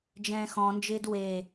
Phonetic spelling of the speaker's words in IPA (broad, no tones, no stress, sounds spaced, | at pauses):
d͡ʒ ɛ̃ː x ɔ̃ n d͡ʒ ɪː d w e